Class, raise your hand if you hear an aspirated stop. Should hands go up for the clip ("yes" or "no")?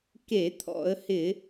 yes